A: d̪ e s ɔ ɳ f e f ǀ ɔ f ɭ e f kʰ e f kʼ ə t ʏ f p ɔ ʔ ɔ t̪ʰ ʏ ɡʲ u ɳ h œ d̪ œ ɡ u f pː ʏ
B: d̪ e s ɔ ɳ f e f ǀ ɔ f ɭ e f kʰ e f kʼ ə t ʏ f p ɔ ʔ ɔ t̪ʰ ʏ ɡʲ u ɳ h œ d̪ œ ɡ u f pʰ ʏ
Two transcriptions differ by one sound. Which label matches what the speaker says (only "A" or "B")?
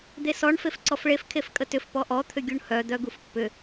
A